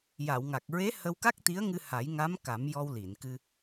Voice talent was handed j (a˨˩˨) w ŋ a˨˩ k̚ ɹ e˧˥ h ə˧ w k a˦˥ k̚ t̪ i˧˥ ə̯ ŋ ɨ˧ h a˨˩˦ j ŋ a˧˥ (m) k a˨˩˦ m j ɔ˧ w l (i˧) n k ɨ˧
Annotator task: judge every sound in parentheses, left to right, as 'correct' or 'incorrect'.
correct, correct, incorrect

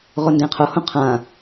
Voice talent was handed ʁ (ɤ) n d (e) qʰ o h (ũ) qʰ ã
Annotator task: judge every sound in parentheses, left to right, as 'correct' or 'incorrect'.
incorrect, incorrect, incorrect

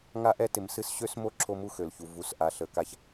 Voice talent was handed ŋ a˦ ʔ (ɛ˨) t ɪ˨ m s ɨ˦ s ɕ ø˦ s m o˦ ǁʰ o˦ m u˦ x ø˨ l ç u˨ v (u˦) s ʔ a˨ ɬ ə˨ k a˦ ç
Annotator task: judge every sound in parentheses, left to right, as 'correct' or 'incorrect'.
incorrect, incorrect

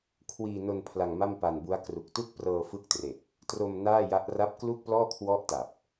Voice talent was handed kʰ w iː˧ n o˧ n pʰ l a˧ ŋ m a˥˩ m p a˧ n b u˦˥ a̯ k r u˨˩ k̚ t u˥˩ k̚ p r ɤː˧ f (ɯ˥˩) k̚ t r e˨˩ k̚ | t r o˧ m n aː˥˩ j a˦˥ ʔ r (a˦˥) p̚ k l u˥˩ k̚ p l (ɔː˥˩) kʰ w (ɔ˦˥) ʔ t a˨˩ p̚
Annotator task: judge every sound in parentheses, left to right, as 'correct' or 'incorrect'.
correct, correct, correct, correct

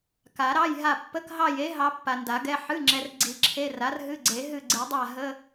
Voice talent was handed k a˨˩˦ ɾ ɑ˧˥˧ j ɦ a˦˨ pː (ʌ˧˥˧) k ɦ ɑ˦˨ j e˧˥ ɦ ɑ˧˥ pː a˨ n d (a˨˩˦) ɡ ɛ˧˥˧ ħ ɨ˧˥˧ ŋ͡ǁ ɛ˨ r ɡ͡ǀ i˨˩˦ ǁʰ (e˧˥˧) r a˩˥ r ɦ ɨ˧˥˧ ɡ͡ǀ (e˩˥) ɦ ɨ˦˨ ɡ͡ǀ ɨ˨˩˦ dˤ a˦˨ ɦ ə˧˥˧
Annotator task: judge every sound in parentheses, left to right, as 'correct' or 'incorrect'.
incorrect, correct, correct, incorrect

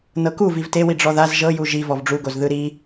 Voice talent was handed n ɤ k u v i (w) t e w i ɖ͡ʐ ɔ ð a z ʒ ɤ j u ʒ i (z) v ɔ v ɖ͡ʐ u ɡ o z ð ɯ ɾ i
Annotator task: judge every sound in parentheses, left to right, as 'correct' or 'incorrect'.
incorrect, incorrect

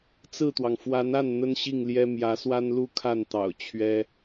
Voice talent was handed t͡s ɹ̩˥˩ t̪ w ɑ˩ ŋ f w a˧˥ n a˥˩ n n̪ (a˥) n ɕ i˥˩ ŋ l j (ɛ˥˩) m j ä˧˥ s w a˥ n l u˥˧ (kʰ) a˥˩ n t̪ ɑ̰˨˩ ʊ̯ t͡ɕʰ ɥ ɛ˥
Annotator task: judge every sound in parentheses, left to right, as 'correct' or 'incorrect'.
incorrect, incorrect, correct

